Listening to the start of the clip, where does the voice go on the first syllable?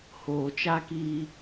low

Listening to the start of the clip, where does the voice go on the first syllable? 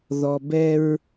low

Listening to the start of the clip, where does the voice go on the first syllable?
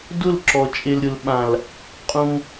falling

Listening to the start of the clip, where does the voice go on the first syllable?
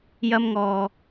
high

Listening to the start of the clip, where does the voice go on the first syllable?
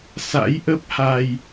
rising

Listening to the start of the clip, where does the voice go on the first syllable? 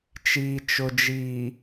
low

